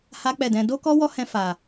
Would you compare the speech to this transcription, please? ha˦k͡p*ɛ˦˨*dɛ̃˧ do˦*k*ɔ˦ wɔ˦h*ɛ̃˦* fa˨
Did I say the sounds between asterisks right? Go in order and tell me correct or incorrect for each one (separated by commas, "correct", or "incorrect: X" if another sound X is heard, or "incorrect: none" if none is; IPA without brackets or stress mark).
correct, correct, incorrect: ɛ̃˧